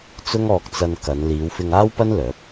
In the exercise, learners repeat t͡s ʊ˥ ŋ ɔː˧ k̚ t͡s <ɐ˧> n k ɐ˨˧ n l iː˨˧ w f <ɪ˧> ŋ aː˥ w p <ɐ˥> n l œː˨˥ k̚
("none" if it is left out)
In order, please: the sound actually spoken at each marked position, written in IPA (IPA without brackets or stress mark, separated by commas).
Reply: ɐ˧, ɪ˧, ɐ˥